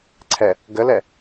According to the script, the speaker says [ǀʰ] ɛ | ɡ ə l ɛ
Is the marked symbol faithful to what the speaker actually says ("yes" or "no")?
yes